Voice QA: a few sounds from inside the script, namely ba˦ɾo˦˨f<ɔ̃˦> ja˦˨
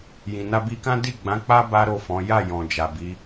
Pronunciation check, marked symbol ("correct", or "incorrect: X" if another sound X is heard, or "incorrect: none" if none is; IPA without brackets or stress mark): incorrect: ɔ̃˨˦